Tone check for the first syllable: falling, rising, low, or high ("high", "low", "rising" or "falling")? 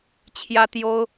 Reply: high